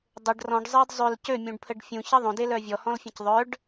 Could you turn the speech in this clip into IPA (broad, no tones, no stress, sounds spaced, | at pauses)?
dˤ ɘ ɖ r ɔ̃ ɖ zˤ ɜ d zˤ ø l c ø mʲ ũ ɖ pʰ ə ɖ fʲ ũ ç ɘ ðˤ õ d e l œ vʲ ɔ h ɔ̃ l fʲ ə̃ c ðˤ œ ɖ